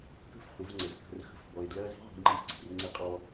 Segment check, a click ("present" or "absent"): present